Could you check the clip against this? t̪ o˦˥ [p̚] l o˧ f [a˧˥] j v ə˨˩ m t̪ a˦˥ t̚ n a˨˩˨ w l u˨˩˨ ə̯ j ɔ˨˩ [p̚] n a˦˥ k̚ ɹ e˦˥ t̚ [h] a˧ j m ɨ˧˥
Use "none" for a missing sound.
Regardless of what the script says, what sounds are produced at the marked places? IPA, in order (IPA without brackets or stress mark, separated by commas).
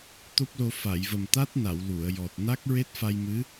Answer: p̚, a˨˩˨, t̚, f